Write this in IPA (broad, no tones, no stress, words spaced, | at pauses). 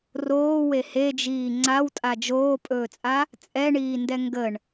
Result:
roːwe hed͡ʒiː ŋ͡ǀawtʼa d͡ʒoːpʼɵːt͡sʼa | t͡sʼɛɳiːndɛ ŋɡəɳ